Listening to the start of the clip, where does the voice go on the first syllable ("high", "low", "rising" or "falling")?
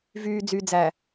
low